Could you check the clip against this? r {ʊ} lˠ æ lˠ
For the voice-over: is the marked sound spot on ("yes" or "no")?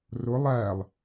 yes